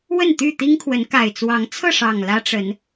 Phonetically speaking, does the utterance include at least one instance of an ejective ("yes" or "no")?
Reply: no